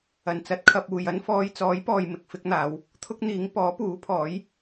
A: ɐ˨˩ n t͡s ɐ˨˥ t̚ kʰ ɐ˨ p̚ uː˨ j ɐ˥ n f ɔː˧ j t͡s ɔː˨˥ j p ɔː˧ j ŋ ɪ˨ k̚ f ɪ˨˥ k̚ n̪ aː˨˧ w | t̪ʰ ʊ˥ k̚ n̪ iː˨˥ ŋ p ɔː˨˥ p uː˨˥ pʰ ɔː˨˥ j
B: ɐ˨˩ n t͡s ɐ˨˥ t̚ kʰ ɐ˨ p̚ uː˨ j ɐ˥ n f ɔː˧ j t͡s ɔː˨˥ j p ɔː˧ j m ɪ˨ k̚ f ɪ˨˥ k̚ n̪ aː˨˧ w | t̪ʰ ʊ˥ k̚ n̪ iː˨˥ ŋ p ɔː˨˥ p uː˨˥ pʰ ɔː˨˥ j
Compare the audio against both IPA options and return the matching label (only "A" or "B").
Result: B